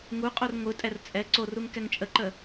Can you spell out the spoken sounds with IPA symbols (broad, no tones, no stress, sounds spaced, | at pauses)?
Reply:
ŋ u qʼ o r ŋʷ ɯ tʼ ɛ r t͡sʼ ɛ ǀ o r u ŋ k ɛ ŋ t͡ʃʼ ə ǃ ə